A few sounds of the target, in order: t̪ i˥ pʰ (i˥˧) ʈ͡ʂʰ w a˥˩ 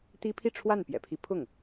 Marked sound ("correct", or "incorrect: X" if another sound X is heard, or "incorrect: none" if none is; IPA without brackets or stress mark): correct